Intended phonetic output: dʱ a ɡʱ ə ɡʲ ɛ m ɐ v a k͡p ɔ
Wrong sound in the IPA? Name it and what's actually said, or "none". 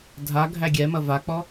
ə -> æ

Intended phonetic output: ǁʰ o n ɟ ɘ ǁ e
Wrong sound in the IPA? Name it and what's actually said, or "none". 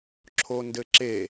ɟ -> d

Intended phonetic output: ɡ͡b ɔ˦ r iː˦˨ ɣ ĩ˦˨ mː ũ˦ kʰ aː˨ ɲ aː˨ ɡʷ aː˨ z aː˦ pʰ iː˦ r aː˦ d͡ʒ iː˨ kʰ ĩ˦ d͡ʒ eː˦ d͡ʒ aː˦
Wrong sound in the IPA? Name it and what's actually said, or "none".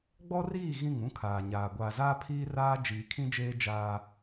mː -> ŋ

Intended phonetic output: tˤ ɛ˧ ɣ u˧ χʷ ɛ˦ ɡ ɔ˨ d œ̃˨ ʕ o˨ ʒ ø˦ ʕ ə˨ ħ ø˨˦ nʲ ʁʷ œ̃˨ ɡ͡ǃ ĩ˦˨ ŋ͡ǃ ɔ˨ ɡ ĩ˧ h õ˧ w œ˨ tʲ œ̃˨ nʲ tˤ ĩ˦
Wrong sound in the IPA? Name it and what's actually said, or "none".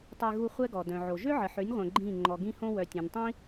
none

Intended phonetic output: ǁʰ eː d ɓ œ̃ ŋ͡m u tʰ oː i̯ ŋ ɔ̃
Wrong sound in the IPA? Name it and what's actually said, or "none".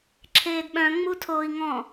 none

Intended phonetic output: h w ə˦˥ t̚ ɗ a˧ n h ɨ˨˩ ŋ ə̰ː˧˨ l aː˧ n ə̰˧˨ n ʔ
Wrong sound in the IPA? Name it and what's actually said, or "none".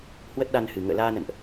none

